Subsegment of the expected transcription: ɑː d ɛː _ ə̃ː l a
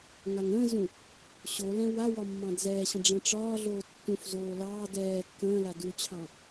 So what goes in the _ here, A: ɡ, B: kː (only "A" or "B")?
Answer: B